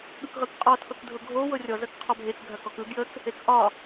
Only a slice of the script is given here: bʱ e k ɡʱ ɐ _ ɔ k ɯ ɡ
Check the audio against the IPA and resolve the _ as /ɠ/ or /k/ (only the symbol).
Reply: k